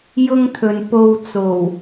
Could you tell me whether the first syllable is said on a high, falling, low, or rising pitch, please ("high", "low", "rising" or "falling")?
high